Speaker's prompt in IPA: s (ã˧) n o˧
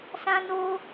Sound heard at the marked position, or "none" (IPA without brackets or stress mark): ã˧